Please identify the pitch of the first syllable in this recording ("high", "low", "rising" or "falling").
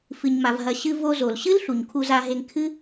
low